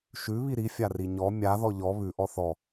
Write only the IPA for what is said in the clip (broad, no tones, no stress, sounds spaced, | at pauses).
ʃ ʉ β i ɾ i fʲ a r i ɲ ɔ mʲ a ð ɔ ʎ ɔ β ʉ ʔ ɔ θ ɔ